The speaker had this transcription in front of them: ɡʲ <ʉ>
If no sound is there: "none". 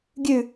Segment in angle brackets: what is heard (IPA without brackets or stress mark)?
ʉ